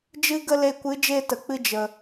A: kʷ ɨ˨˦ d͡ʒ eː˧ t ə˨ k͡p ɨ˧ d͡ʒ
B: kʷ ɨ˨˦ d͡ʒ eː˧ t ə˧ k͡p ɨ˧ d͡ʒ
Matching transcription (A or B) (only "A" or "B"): A